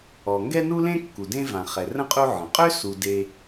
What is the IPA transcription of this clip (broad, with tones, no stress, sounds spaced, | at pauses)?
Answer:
ɔ˨ ŋ ɡ ɛ˥ n u˥ l ẽ˥ kː u˨ d ẽ˥ v ã˨ χ ɛ˨ r ə̃˥ qʼ u˦ ʕ ə̃˩ qʼ ø˥ s u˨ d e˦